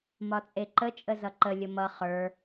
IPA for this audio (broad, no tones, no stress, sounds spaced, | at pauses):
m ɒ t͡sʼ e ǃ ə t͡ʃʼ ə z ʌ ǃ ə lʲ ə m ʌ χ ə˞